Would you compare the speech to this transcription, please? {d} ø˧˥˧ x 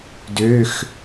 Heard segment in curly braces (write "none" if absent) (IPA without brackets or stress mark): d